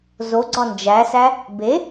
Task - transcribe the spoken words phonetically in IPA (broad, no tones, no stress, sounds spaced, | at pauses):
z o ɡ͡ǀ ɒ n d͡ʒ æ s æ | b e